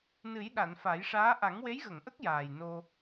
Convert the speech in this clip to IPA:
nɨ˨˩˦j ɗa˨˩˨nfa˨˩˦jʂaː˧˥ ʔa˨˩˦ŋwe˧˥jɣə˨˩˨ŋʔə˦˥k̚ jaː˨˩jno˧

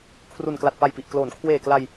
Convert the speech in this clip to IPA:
kʰru˨˩nkla˨˩t̚ pa˨˩jpi˨˩ʔ kloː˩˦n kʰweː˨˩kla˧j

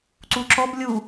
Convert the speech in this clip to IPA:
ǀuǁɔb lʲu

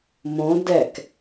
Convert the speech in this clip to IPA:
mõ dɛk

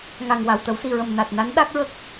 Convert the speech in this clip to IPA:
ŋa˨˩ŋ wa˨˩wt̪ə˨˩˦wsi˨˩ɹə˨˩m na˨˩t̚na˧˥n ɗa˦˥k̚ɹə˦˥k̚

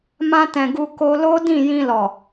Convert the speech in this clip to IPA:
mã˧tɛ̃˨ɡu˧ ko˧lo˦ dĩ˦˨ jĩ˧lɔ˨

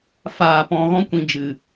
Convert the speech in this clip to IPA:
faː˨ pɔ̃˨ɣɔ̃˧kʷĩ˨ d͡ʒɨ˨

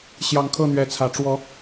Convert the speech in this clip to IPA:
ɕjɑ˨˦ŋkʰɤ˥˨n̪ɥɛ˨˦t͡sʰä˨˩ ʈ͡ʂwɔ˨˦

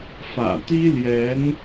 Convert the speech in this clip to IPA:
fä̰˨˩ t̪i˥ljɛ˧˥n

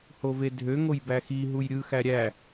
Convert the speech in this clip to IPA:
hovedʱø ŋojbæxi ɦujɾʲɯ xæɾʲæ

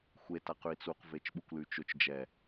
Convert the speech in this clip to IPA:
xʷe taqʉi̯t͡suq vet͡ʃɓukʷlyt͡ʃʊt͡ʃ d͡ʒɛ

